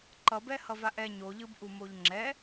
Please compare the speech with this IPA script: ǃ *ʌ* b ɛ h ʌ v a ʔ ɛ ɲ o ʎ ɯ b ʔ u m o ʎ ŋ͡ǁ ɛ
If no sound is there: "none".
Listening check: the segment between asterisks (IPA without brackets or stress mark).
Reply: ʌ